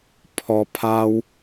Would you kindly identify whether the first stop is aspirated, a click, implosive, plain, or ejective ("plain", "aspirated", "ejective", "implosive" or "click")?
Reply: aspirated